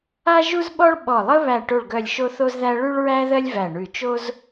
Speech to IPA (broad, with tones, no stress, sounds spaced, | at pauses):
a˥ ʒ u˥ z ɓ ɔ˥ ɭ ɓ ɔ˧˩ lˠ ə˥ β æ˧˩ ʈ o˧˩ ɭ ɡ œ˧˩ lʲ ʃ o˥ θ o˥ z ð æ˥ ɭ ʉ˥ ɭ ɹ æ˥ ð ɜ˥ lʲ v æ˧˩ ɳ ʉ˧˩ t͡ʃ o˥ z